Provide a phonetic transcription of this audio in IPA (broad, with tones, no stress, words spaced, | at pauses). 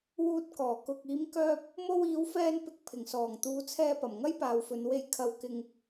wuː˧t̚kɔː˨˩ kʊ˨k̚ iː˨˧mkœː˧p̚ | mo˧wiː˨˧w fɛː˧npɪ˨k̚ pʰɪ˨˩ŋsɔː˨˩ŋ t̪uː˨˧t͡sʰɛː˧pɐ˨˩m ŋɐ˥jpaː˨wfɵ˨˧nwe˧j kʰɐ˨w kɪ˨ŋ